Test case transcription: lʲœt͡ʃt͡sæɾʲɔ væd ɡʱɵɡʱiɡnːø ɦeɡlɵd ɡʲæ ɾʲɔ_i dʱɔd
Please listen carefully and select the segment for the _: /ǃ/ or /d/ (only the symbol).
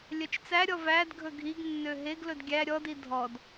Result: d